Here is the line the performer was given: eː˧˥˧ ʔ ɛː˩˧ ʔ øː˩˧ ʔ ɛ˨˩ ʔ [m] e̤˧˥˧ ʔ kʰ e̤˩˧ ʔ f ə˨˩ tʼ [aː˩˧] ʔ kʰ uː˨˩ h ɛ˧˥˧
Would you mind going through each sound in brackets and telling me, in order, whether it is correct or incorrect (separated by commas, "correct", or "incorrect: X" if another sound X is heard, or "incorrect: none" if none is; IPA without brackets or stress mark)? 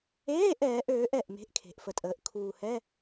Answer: correct, incorrect: əː˩˧